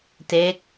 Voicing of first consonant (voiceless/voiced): voiceless